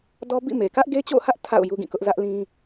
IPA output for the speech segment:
d ɔ˦ b ḭ˦˨ m e˨ k ä˦ ʔ ɡ e˦ t͡ɕ o̰˦˨ h ä˦ ʔ tʰ a̰˦˨ ʊ̯ j u˦ ɡ ĩ˦˨ k ʊ˦ ʔ z ä˦ ʔ l ĩ˦

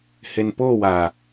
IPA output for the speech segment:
h e n p o w a

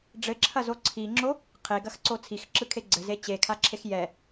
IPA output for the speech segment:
ɖ͡ʐ ɘ ǁʰ ɐ z o ǀʰ i ŋ͡ǁ o | qʰ e ɡ ɐ x ǀ o t͡sʰ i x ǁ ɯ kʰ e ɡ͡ǀ ɘ z e t͡ɕ e kʰ a ǁʰ e x j ɛ

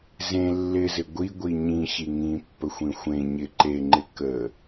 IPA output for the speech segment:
z ẽ lː ɪ z ɪ ɡʷ i ɡʷ i ɲ ĩ ɕ i ŋ ĩ pː ə xʷ ĩ xʷ ẽ ɲ ɪ ǃ e ŋ͡ǃ ɪ k ə

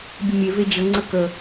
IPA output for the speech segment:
bʲ ə mʲ e v e d͡ʑ ə ŋ͡ǀ ə k ə

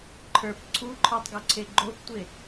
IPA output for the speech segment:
ǃʰ ə˞ p ǀʰ u ǃʰ ə˞ tˤ ɡ o ǀʰ e ɡ͡ǃ o p tʷ e

